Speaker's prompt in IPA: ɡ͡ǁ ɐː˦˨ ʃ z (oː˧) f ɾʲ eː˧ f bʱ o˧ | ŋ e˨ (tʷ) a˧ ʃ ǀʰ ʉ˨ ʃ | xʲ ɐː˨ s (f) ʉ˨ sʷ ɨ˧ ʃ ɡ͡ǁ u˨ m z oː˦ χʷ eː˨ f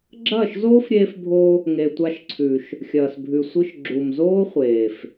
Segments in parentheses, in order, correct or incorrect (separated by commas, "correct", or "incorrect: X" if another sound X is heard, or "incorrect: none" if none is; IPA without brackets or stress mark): incorrect: oː˦, correct, incorrect: bʱ